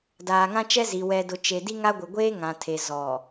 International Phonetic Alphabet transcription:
d aː˨ ŋ ã˦ t͡ʃ ɛ˦ z i˨ w ɛ˨ d ʊ˨ t͡ʃ e˨ d i˦ ŋ a˦ ɡʷ ɪ˨ ɡʷ eː˦ ŋ ã˨ tʰ e˨ z ɔ˨

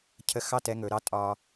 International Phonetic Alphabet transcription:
cʰ ə˧ x ɑ˥˩ t ɛ˧ ŋ ɵ˩˧ ɾ ɑ˧˥ tʼ ɒː˧

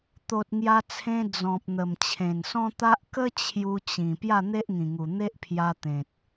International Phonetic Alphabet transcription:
t̪ o˨ t̚ ŋ j a˧ t͡sʰ ẽ˧ d͡z ɔ̃˨ p̚ n̪ ə˨˩ m t͡ɕʰ ẽ˨˩ n s ɔ̃˦ t̪ a˦ ʔ k ə˦ t͡ɕʰ j u˧ t͡ɕ ĩ˨˩ p j a˥˧ n̪ e˦ ʔ ŋ ĩ˨˩ ŋ u˨˩ n̪ e˦ ʔ pʰ j a˧ t̪ ẽ˨ t̚

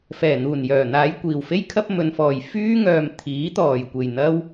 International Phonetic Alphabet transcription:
f ɛː˨˩ n̪ uː˨˩ n j œː˨˩ n̪ aː˨˧ j kʷ iː˨˩ w f e˥ j kʰ ɐ˥ p̚ m ɵ˨˧ n f ɔː˨ j f yː˥ ŋ œː˨ m t̪ʰ iː˨˥ t̪ ɔː˨˩ j kʷ e˨˩ j n̪ ɐ˥ w

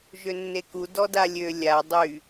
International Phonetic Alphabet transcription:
ʒ ø nː e k u d ɔ d a lʲ ø lʲ a dˤ y

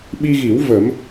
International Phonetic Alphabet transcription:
ɓ i˧ ɣ i˨˩˦ w v ə˨˩˦ m

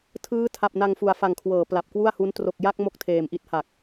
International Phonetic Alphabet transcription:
tʰ ɯː˦˥ tʰ a˨˩ p̚ n a˧ ŋ f u˨˩ a̯ f a˨˩ ŋ kʰ w ɤː˩˦ p l a˨˩ p̚ k w u˥˩ a̯ h u˦˥ n t r o˨˩ k̚ j a˥˩ k̚ m o˥˩ k̚ tʰ eː˨˩ m ʔ i˦˥ t̚ h a˨˩ k̚

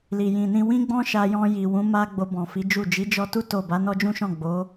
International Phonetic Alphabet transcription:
l i˨ j ĩ˨ n ĩ˧ w ĩ˦ ɡ͡b ɔ̃˦ ʃ a˧ j ɔ̃˧ j i˨ w ũ˨˦ m a˦ ɡ͡b o˧ b ɔ̃˨ f i˨˦ d͡ʒ u˦˨ d͡ʒ i˨˦ d͡ʒ ɔ˧ t u˦ t o˦˨ b a˨˦ n ɔ˦ d͡ʒ ũ˦ ʃ ɔ̃˦˨ ɡ͡b o˨˦

